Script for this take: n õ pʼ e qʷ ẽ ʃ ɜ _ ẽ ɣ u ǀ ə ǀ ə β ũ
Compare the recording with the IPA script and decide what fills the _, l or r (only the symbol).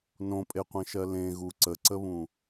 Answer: l